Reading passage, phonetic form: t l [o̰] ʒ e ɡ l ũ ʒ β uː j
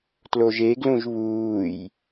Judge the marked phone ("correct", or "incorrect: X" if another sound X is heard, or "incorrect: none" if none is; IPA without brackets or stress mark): incorrect: o